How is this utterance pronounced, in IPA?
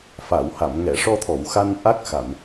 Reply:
f a˨˩˨ w h a˨˩˨ m ŋ ɛ˨˩˨ ʂ ɔ˧ t̪ʰ ɔ˨˩˨ w x a˧ n ʔ a˦˥ k̚ x a˨˩˨ m

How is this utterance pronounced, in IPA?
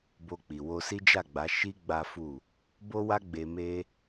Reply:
b o˧ k͡p i˨ w o˧ s i˦ d͡ʒ a˦˨ ɡ͡b a˨˦ ʃ i˦ ɡ͡b a˦ f u˦˨ | b o˦ w a˦ ɡ͡b e˧ m e˦

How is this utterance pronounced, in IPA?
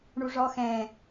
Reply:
ɳ u ʐ ɔ x ɛ̃ː

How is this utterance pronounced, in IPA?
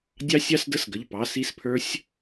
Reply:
dʲ ɑ˦˥ sʲ ɑ˦˥ s d ə˦˥ s ɡ ə˩˧˩ ʎ p ɑ˩˧˩ s i˦˥ s pʰ ə˞˦˥ sʲ

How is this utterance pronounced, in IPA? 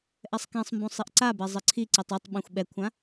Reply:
ʔ ɛ sˤ k ɛ̃ sˤ m b ũ sˤ i ʔ ǀ a b ɛ zˤ ɘ ǀʰ i ǀ i tˤ u tˤ ɓ ẽ xʷ ɓ ɛ kʷʰ ã

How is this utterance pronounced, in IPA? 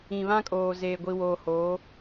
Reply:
ĩ˨ β ã˦ kʼ oː˨ z eː˨ ɡʷ i˨ w oː˨ h oː˨˦

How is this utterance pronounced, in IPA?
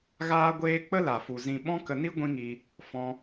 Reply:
ɣ aː˦ ɡʷ eː˦ k͡p ə˦ l a˨ f u˨ z ĩ˧ ɓ ɔ̃˦ k ə˧ n i˦ ɡʷ ĩ˦ ŋ i˧ | f ɔ̃˧

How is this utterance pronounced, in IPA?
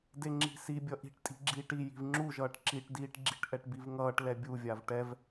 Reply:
d e ŋ͡ǁ i̤ s i bʲ ʌ ʔ i̤ ʈ tʼ i̤ ɡ͡ǁ iː ʈ i j i̤ v ŋ͡ǁ u ʒ ʌː ʈ ǁ i ʈ d iː ʈ ɡ͡ǁ i̤ ʈ ʔ ɛ ʈ b i v ŋ ʌː ʈ l ɛ bʲ u vʲ a v ʈ ɛ v

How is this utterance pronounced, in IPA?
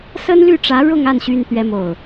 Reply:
s ə˥ n l y˥˩ ʈ͡ʂ ä˧˥ ɻ ʊ˥˧ ŋ a˥˩ n ɕ y˥ n t̪ ɥ ɛ˥ m o˥˩ ʊ̯

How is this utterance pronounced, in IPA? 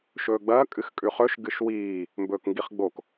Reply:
ʃ ɵː ɡ͡b ɐː kʼ ɨ x kʼ ʉ χ ɵ ʃ ɡ ɨ ʃ w iː | m b ɵː k ŋ ɡ i χ ɡ͡b o k

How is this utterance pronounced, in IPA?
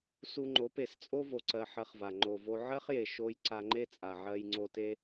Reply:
s u˧ ŋ͡ǃ o˨˦ p e˨ s t͡sʼ o˦ v o˧ ǀ ɜ˧ ħ ɜ˧ χ v a˨ ŋ͡ǃ o˨ v o˧ ʕ ɜ˦ χ j e˨ ʃ o˦ j ǀ a˧ ŋ͡ǃ e˦ t͡sʼ a˨ ʕ ɜ˧ j ŋ͡ǀ o˧ t e˦

